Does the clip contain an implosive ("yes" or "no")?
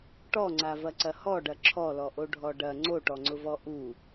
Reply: no